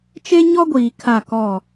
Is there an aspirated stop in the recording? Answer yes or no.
yes